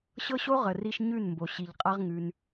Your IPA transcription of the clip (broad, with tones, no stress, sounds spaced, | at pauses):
ɕ ɤ˦ ɕ o˦ ʁ ə˨ r i˧ ʃ ɲ ʉ˦˨ n m b o˨ ɕ i˨ ʎ qʼ a˦ ʁ ŋ ʉ˧ n